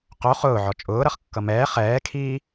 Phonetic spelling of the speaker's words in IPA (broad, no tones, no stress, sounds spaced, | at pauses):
q o χ ʊː ʕ ɔ t͡ʃʼ ʊː ɾ ʌ χ kː ʌ m ɛː χ ɛː kʰ iː